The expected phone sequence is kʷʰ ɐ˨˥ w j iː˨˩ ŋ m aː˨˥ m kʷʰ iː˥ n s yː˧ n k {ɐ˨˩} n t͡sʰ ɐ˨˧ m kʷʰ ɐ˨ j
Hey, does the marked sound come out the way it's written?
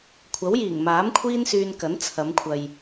no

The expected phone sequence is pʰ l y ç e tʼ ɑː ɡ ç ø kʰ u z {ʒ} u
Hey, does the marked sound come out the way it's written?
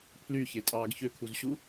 no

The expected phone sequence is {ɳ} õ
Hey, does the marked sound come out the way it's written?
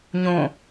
no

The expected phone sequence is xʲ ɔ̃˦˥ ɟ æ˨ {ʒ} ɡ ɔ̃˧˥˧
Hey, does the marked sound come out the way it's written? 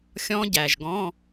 yes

